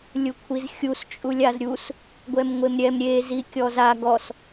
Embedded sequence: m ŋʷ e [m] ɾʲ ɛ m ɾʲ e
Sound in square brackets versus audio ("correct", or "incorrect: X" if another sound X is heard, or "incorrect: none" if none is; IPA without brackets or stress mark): correct